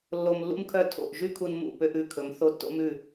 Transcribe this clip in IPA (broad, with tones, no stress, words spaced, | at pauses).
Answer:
lːo˧mlːṵ˥mkʰœ˥˩ tʰo̰˥˩ʔ ʒy˥kʰu˧nmṵ˥˩ pø˥ʔʉ˩˥kʰɵ˩˥m θo˥tːo̰˥mʉ˥˩